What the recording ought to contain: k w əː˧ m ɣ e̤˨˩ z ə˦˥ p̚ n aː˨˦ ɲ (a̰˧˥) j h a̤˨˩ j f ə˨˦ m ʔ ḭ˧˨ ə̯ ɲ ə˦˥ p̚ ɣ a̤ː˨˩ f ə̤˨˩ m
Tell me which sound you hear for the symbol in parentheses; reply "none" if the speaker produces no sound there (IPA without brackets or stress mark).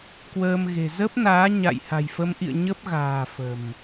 a̰˧˨